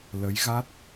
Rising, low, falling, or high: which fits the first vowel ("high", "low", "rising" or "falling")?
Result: rising